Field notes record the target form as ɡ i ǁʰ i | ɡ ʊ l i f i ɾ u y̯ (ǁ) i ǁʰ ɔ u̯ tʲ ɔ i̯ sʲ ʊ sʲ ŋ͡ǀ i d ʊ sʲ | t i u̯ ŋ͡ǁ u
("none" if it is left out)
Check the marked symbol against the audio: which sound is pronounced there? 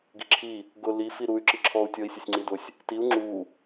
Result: ǁ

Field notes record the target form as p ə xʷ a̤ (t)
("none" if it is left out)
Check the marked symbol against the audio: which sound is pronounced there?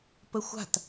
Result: t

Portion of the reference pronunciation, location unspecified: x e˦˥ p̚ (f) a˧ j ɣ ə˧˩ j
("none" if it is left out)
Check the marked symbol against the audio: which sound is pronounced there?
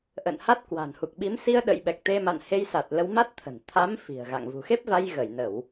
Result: v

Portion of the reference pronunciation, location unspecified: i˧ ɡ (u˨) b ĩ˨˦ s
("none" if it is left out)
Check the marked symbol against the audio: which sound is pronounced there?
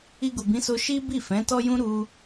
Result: u˨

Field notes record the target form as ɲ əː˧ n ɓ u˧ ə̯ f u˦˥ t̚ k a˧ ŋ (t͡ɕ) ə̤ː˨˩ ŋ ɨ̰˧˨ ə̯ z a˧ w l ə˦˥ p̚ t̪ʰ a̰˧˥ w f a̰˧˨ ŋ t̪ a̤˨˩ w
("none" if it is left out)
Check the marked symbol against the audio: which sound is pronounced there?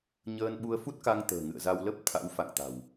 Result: t̪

